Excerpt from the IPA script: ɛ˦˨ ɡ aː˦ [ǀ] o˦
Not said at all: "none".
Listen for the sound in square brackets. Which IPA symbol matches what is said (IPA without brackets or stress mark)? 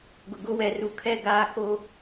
k